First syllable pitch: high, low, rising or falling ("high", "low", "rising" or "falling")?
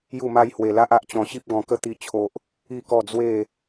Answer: falling